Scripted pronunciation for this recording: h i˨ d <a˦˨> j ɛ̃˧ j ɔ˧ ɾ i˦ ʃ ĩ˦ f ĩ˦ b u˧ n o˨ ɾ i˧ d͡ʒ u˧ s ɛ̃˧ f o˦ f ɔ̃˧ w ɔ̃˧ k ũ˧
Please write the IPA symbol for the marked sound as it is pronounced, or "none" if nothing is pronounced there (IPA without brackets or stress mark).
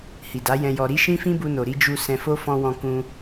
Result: a˨˦